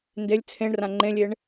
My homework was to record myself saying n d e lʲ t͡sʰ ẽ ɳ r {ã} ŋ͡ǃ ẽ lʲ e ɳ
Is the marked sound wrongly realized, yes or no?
no